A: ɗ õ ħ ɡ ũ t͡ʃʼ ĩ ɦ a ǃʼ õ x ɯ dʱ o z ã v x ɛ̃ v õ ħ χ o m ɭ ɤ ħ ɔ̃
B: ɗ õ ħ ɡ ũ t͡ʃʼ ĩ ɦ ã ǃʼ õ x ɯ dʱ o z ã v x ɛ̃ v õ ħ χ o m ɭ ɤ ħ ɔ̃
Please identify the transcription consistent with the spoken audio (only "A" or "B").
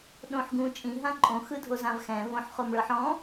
B